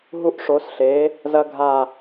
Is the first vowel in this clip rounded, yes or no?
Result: yes